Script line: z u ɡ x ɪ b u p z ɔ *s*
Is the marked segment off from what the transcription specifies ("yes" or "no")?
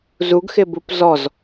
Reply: yes